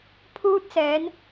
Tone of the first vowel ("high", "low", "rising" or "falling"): high